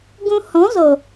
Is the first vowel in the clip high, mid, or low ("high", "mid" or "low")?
high